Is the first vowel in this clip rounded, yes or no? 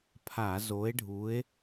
no